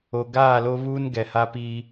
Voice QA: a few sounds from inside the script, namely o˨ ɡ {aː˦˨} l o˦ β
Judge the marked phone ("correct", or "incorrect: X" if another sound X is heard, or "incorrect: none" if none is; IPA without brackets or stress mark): correct